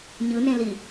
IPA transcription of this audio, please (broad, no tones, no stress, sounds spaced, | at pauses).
ɲ ɯ n ẽ l i